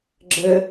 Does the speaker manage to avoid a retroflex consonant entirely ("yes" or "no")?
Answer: yes